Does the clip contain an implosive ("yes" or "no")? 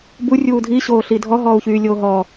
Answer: no